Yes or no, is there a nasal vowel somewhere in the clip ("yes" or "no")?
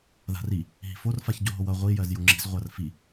no